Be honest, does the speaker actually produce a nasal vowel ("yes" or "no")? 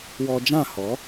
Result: yes